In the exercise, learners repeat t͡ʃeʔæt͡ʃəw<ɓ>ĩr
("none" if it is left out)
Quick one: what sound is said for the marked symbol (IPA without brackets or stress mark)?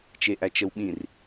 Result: ɓ